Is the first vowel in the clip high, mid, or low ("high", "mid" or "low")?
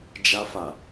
low